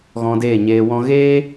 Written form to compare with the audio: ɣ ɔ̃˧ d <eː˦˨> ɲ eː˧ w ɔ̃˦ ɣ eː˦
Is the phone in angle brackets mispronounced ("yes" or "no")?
no